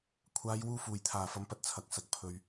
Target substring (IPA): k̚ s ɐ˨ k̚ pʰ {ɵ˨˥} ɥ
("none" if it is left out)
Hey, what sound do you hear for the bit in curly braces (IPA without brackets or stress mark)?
ɵ˨